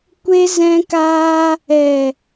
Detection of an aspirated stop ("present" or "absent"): absent